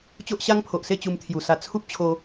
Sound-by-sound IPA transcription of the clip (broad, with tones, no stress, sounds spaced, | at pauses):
t͡ɕ o˦ ʔ ɕ a˦ ŋ pʰ o˨ ʔ s e˥˧ t͡ɕ u˧ m t̪ʰ j u˨˩ s a˧ t͡sʰ u˦ p̚ t͡ɕʰ o˧